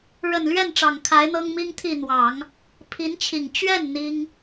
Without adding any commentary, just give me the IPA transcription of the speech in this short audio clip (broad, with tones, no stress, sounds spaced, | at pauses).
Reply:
ɻ ə˨˩ n l ɥ ɛ˥˩ n ʈ͡ʂ ɑ˨˩ ŋ kʰ a˧˥ ɪ̯ n̪ ɤ˥ ŋ m i˥ ŋ t̪ʰ i˥˩ n̪ w ɑ˨˩˦ ŋ | pʰ i˧˥ n t͡ɕʰ i˨˩ ŋ t͡ɕ ɥ ɛ˥˩ n n̪ i˥ ŋ